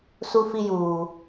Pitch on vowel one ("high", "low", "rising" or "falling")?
high